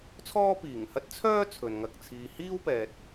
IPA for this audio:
t͡sʰ ɔː˥ p iː˨˩ ŋ h ɐ˥ t̚ t͡sʰ œː˥ t͡sʰ ɵ˨ n ŋ ɐ˧ k̚ t͡sʰ iː˧ h iː˥ w p ɛː˨ t̚

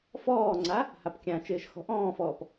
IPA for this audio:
f ɔː ŋ͡ǀ a | h a p kʲ ã t͡ʃ ɪː ʃ x ɔ̤ ʔ ɔ̃ː f ɔː p

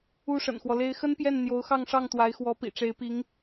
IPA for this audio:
u˥ ʂ ə̰˨˩ n x w ɔ˦ l e˥ ɪ̯ x ə˥ n p j ɛ˥˩ n n̪ j o˧˥ ʊ̯ x ɑ˥˧ ŋ ʂ ɑ˥˩ ŋ t̪ w a˧˥ ɪ̯ x w ɔ˧˥ p ḭ˨˩ ʈ͡ʂ e˧˥ ɪ̯ p i˧˥ ŋ

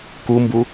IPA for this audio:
k u m b u

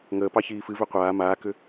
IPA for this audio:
ŋ əː p ɑ ç iː f ɨ v ʏ qʷ aː m aː k ʏ

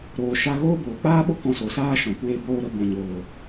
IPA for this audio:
ɾ oː˨ ʃ a˧ ɣ oː˦ b oː˨ k͡p aː˦ ɓ o˦ k ɔ̃˧ s o˨ s aː˦ ʃ ɔ̃˨ kʷ eː˦ b oː˦ ɾ ə˦ b ɔ̃˨ ɲ oː˨

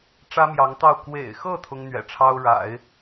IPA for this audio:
ʈ͡ʂ ä˥ m j ɑ˧˥ ŋ t̪ ɑ˥˩ ʊ̯ k w ḛ˨˩ ɪ̯ x ɤ˥˩ t̪ʰ ʊ˥ ŋ n̪ ɥ ɛ̰˨˩ ʈ͡ʂʰ ɑ˥ ʊ̯ ɻ a̰˨˩˦ ɪ̯

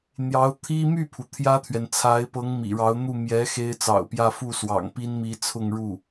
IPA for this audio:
n̪ j ɑ˧˥ ʊ̯ t̪ʰ i˥ m y˥˩ pʰ u˩ t̪ʰ j ä˥ t̪ʰ ɥ ɛ˨ n t͡sʰ a˧˥ ɪ̯ p ɤ˧˥ ŋ m ḭ˨˩ ɻ ɑ˧˥ ʊ̯ n̪ u˥˩ m j ɛ˧˥ x e˥ ɪ̯ t͡s ɑ̰˨˩ ʊ̯ p j ä˥˧ f u˥˩ s w ɑ̰˨˩ ŋ p i˥ n m i˧˥ t͡sʰ ʊ˥˧ ŋ ɻ u˥˩

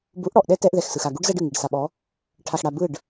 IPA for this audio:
b u˨˦ ʔ ɽ ɔ˨ ʔ ɗ ɛ˦ t ɛ˦ ʔ ð ɛ˨ x s ɯ˨ x a˨ ɡ u˦ ɖ z ɛ˦ ɖ ɯ˨ ŋ i˨ ɖ s a˨ ɓ ɔ˨˦ | ʈʰ a˨ x ɽ a˨ b ɯ˦˨ ɖ

